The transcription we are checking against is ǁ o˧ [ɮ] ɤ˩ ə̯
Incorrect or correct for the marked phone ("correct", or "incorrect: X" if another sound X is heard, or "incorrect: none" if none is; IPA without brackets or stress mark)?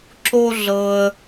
correct